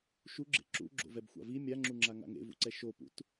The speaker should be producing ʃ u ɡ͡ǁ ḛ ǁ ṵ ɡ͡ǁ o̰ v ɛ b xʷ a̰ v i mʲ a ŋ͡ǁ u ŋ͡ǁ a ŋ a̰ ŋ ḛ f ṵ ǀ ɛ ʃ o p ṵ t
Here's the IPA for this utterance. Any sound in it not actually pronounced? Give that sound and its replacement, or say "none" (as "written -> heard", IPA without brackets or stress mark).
f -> v